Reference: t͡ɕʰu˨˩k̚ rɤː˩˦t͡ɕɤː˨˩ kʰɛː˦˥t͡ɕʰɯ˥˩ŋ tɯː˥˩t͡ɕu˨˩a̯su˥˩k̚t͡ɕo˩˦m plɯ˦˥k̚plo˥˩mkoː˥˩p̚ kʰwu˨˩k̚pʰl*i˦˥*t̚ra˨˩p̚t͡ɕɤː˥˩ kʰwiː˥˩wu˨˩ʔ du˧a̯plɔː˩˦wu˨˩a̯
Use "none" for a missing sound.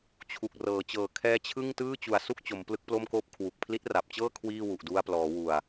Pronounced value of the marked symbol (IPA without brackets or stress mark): i˦˥